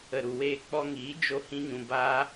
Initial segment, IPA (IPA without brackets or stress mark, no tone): ə